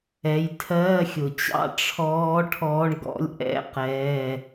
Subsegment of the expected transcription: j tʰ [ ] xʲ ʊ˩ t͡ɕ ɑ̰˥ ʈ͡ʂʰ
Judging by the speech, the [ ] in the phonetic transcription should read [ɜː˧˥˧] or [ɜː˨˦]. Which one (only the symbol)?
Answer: ɜː˧˥˧